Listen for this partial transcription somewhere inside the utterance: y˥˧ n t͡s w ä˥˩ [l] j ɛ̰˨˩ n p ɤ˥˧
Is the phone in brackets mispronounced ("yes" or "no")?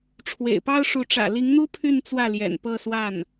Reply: no